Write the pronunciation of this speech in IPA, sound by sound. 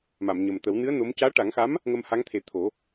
m a˨˩˨ m ɲ ə˨˩ m t̪ ə˨˩˦ w n ɨ˧˥ ə̯ n o˧˥ m c aː˧˥ ʈ a˨˩˦ ŋ x a˧˥ m | ŋ ə˧ m h a˧˥ ŋ t̪ʰ e˨˩˦ t̪ʰ o˨˩˦

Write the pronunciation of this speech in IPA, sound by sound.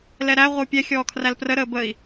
l ɛ ɾ æ ʁʷ ə u̯ pʲ ɛ xʲ ɔː kʰ r æ l p r ə ɾ əː b ə i̯

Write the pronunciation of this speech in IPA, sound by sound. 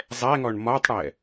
zˤ ɛ ŋ ɔ ɳ m ɒ tˤ ɽ ɛ

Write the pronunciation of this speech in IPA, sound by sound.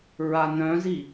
ɹ a n œ̃ z i

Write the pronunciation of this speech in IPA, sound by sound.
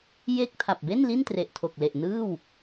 j e˥˩ k̚ tʰ a˨˩ p̚ b e˥˩ n l i˥˩ n t r e˨˩ ʔ tʰ o˨˩ k̚ l e˨˩ ʔ n ɯː˥˩ w

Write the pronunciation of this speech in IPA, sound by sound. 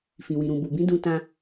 f ĩ˨ w ĩ˨ ɾ ũ˨ b u˨ b ĩ˨˦ d ũ˧ t ã˧

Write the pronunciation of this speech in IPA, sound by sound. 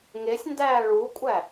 ŋ e sʲ n d æː ɭ u kʷʼ æ

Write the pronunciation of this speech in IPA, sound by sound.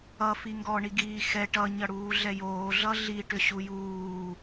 ʌ f i ŋ ɡ ɔ ɳ i ɡ iː x ɛ ʈ ʌ ɲ ʌ ɽ uː ɮ ɛ j oː ɮ ʌ ɮ i ʈ ʏ ɕ u j uː

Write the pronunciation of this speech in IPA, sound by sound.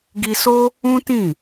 ɡ i˧ s o˦ | ũ˦ t ĩ˦˨

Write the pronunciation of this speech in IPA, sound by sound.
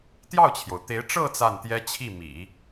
t̪ j ɑ˥˩ ʊ̯ t͡ɕʰ j o˩ ʊ̯ t̪ e˧˥ ɪ̯ ʈ͡ʂ ɤ˥˧ t͡s a˥˩ n t̪ j ɛ˥ t͡ɕʰ i˥˩ m ḭ˨˩˦

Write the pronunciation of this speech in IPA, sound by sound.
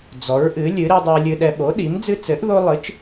d͡z ɔ˨˥ ɹ ʔ ɨ˨˥ lʲ ɨ˨˥ ɾ i˦ dˤ i˦ lʲ ɨ˦ ɗ ɛ˦ ɓ o˨˥ ɗ i˨˥ m d͡z ɨ˦ t͡s ɘ˨˥ ʔ ð o˦ lˠ ɨ˨˥ t͡ʃ

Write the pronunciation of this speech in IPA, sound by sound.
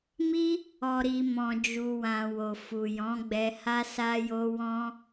m i˦ | ɔ˨ ɾ i˨ m ɔ̃˨ d͡ʒ u˨ w ã˨ w o˨ f u˨ j ɔ̃˨˦ ɡ͡b ɛ˧ h a˦ s a˦ j o˦ w ɔ̃˦

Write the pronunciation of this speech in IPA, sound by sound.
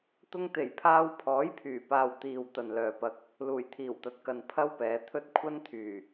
t̪ ʊ˧ ŋ t̪ e˨˩ j pʰ aː˧ w pʰ ɔː˨˥ j pʰ yː˨˩ p aː˨ w t̪ iː˨ w t̪ ɐ˨ n l œː˨ p ɐ˧ k̚ | l uː˨˩ j t̪ʰ iː˨˩ w t̪ ɐ˨ t̚ k ɐ˨ n pʰ ɐ˥ w p ɛː˨˧ t̪ʰ ɵ˥ t̚ kʷʰ ɐ˥ n t̪ʰ yː˨˩

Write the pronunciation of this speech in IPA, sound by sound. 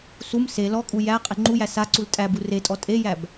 s u m s e l ɔ kʼ u j æ qʼ e ŋ͡ǃ u j æ s a ǀ u l tʼ æ b u r e tʼ ɔ tʼ e j æ b

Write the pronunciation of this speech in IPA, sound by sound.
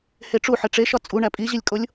h e ʈ͡ʂ u ħ e ʈ͡ʂ e ʃ ɒ t͡sʼ u ɳ æ pʼ i ʑ i lʲ kʼ o lʲ

